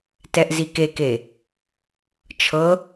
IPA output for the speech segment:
t ɛ ʔ z i k e k e | t͡ʃʰ ɤ

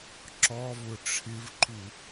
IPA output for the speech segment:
ǁ ɔ v ʊ ʈ͡ʂʰ ɪ v ǃ u

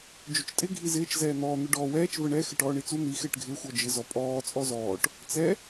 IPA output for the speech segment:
d͡ʒ ʊ t͡ʃ tʼ ɪ ɡʱ i z ɪː t͡ʃ z ɛː n̪ ɔː n̪ ʊ ɖ ɔː w ɛː t͡ʃ v ə ɳ ɛ x ɪ ʈ ɔː ɳ i t͡s u n̪ i x ɪː ʈ ɡʱ ɪː xʷ ɔ d͡ʒ ɪ z ɔ pʼ ɔː t͡sʼ ɔ z ɔː ʈ | t͡s ɛ

